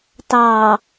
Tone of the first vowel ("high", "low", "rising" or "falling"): low